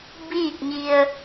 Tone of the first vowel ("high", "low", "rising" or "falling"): falling